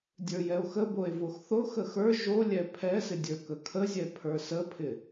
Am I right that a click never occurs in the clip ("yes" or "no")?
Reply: yes